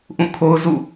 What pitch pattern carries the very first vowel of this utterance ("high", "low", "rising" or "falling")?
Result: falling